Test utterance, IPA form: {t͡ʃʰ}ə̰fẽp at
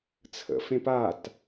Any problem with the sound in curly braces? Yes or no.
yes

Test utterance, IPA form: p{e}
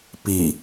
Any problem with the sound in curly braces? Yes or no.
yes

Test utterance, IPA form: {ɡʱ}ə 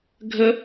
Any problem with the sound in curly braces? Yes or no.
no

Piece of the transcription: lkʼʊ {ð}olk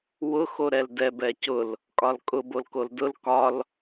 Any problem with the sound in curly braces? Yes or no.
yes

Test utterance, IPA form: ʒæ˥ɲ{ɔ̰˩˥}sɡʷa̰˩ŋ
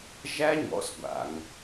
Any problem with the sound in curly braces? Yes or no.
no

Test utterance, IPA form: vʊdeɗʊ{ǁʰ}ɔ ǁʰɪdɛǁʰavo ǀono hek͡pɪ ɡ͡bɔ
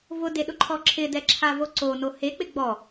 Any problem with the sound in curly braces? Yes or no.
yes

